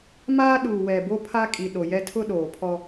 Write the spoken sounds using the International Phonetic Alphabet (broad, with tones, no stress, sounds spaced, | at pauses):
m aː˦ ɗ uː˨ w ɛ˨ b o˦ pʰ a˦ kʼ i˨ ɗ o˨ j ɛ˦ tʰ ʊ˦ ɗ oː˨ pʰ ɔ˦